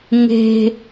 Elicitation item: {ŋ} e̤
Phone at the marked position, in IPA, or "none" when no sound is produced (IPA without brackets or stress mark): ŋ